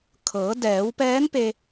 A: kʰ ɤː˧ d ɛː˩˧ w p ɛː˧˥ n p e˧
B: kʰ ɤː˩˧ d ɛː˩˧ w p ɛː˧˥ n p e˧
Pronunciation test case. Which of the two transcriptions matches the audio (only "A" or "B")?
B